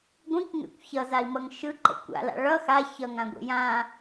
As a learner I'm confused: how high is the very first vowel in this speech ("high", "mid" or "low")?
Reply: high